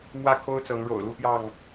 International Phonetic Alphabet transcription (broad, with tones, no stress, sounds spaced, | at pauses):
m w ä˥˨ kʰ o˦ ʊ̯ t͡s ɤ˨˦ ŋ ɻ o̰˨˩ ʊ̯ l u˥˨ p j ɑ˥˨ ŋ